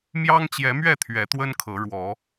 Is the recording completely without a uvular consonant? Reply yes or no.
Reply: yes